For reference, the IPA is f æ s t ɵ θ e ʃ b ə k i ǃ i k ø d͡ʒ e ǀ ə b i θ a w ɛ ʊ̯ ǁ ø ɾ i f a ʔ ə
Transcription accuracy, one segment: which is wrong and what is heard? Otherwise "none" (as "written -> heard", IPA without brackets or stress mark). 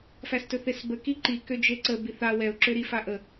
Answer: ʃ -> s